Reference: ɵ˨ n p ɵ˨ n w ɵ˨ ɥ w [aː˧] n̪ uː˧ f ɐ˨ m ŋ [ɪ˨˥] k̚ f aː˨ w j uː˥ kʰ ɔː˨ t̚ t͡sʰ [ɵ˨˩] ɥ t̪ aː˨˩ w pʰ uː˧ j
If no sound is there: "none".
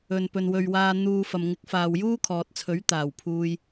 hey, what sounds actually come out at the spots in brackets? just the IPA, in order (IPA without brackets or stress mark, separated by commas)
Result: aː˧, ɪ˨˥, ɵ˨˥